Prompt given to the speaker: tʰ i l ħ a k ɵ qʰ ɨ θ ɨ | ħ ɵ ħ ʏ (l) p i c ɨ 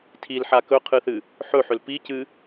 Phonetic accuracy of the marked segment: correct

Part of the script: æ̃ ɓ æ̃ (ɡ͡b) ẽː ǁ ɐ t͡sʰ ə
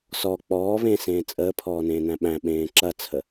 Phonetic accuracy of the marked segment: incorrect: ɓ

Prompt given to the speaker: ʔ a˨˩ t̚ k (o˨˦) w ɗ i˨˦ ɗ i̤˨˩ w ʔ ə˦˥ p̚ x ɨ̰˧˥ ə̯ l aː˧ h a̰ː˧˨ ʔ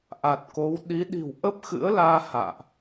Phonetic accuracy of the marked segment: correct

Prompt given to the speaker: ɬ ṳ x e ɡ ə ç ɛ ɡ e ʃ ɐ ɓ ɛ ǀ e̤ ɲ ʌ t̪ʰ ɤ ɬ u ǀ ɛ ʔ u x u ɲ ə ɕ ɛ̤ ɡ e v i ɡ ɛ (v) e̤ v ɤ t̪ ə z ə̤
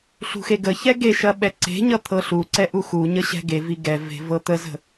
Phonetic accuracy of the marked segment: correct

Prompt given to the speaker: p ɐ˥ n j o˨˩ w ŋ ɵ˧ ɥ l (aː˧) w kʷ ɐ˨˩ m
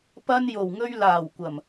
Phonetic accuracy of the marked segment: incorrect: aː˨˩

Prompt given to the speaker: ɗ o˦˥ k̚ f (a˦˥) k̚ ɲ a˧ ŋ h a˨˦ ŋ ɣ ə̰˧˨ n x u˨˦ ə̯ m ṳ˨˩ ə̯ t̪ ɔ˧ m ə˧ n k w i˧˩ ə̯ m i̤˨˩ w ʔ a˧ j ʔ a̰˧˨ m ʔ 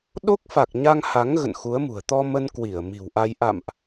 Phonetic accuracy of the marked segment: incorrect: a˨˩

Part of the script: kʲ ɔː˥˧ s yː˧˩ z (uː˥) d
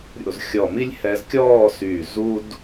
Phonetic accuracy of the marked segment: correct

